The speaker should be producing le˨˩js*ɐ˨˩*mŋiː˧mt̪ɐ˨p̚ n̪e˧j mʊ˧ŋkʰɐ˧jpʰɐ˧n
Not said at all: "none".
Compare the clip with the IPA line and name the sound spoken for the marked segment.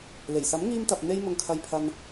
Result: ɐ˨˥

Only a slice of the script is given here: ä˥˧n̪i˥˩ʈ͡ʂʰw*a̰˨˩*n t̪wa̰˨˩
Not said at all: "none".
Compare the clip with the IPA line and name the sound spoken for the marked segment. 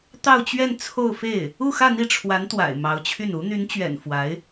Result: a˧˥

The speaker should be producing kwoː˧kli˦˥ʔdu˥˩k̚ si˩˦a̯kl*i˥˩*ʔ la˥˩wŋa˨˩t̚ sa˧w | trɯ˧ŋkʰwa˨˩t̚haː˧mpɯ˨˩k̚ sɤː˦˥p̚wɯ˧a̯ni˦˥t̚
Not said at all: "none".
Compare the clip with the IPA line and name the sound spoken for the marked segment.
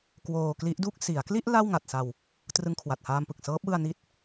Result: i˥˩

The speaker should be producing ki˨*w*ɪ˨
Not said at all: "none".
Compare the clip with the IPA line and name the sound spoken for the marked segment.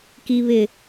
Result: β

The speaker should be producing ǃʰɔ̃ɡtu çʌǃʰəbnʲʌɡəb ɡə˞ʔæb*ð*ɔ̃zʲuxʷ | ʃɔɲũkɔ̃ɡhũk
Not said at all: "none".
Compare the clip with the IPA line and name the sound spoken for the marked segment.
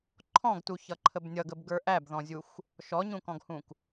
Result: ð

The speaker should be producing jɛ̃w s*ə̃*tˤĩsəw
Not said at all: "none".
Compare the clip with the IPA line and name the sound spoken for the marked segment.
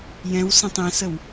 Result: ə̃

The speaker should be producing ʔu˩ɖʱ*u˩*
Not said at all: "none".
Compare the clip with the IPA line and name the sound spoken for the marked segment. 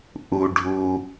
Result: u˩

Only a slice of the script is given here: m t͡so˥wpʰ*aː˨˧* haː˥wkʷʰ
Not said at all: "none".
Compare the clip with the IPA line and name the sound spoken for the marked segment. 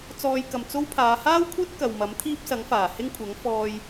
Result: aː˨˧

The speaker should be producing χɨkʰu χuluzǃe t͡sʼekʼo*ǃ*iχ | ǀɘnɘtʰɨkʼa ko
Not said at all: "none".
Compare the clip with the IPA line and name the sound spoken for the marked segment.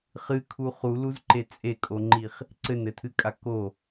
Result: ŋ͡ǃ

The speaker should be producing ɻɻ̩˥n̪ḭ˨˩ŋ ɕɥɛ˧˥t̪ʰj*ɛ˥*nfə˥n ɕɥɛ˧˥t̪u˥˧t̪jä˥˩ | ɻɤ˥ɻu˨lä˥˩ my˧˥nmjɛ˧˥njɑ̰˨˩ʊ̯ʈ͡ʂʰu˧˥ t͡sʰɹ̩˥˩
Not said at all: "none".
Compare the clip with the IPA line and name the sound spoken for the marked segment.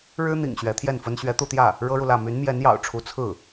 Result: ɛ˥˩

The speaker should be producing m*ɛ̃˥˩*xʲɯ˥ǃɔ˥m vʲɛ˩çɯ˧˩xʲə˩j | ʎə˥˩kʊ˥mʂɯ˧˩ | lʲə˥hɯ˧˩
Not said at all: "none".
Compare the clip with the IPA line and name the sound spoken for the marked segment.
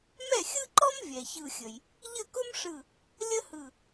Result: ɛ˥˩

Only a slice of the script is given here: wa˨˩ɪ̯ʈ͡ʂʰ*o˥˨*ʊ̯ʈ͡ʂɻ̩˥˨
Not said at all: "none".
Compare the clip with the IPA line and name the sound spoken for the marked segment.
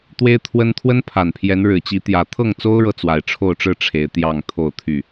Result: o˥˨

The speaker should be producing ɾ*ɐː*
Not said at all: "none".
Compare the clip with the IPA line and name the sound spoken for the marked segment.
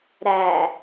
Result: æː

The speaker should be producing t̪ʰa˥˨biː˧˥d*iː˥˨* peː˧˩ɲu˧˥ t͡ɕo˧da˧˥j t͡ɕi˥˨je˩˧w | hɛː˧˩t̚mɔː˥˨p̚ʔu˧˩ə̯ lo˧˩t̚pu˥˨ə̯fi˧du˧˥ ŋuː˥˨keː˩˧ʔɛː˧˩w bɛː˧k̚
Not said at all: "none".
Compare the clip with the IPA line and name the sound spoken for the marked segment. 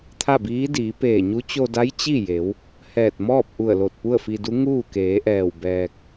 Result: iː˩˧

